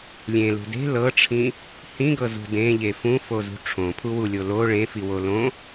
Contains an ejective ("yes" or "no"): no